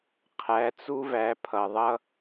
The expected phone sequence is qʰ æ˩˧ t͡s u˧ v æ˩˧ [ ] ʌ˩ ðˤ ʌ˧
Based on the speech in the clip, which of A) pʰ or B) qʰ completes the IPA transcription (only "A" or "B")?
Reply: A